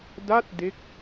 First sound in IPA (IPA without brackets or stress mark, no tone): d